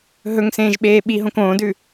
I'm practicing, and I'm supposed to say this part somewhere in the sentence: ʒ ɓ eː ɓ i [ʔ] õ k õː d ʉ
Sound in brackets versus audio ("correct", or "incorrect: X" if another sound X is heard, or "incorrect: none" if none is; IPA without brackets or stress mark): incorrect: ɦ